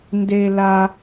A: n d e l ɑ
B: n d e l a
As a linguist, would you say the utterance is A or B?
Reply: B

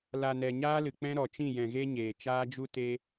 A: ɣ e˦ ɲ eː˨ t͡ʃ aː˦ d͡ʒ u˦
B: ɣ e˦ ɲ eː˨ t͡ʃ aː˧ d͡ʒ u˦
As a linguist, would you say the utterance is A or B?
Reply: A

